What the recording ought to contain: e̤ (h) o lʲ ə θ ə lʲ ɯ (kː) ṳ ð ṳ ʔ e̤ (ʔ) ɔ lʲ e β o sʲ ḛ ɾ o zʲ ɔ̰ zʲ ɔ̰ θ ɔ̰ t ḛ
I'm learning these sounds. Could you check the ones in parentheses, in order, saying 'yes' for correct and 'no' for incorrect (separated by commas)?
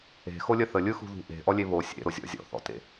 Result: no, no, yes